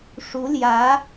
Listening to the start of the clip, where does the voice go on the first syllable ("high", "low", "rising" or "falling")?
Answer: rising